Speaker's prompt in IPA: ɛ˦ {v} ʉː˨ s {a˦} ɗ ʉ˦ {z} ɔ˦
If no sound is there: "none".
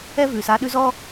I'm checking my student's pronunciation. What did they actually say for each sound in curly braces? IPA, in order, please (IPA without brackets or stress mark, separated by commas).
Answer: v, a˦, z